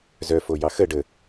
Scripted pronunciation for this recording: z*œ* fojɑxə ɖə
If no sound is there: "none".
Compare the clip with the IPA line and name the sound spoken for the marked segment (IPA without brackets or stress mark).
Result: œ